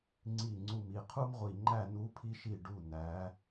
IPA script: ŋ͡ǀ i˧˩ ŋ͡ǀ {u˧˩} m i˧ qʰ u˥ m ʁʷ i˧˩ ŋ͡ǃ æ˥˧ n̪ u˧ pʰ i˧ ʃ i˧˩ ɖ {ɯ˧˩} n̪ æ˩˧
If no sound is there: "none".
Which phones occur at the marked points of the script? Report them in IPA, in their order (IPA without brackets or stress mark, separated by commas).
u˧˩, u˧˩